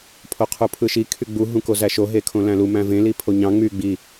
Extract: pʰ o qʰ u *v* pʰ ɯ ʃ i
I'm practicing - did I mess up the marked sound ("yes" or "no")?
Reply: yes